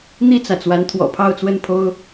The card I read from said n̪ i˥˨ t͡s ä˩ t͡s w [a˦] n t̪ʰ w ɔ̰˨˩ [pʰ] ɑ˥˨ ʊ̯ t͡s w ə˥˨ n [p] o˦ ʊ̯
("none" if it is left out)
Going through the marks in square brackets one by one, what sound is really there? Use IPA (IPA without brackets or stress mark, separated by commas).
a˨˦, pʰ, pʰ